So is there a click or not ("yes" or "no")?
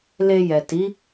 no